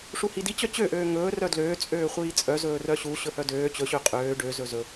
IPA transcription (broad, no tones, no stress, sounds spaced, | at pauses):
ʂ u h i d i t͡ɕ œ t͡ɕ ø ʔ øː ŋ ɵː r œ d l øː t͡sʼ øː χʷ iː t͡sʼ œ z ɵː r œ ɕ u ɕ ɵ h œ d øː t͡ɕ ɵ ɕ ø qʼ øː ɖ ø z ɵ z ɵ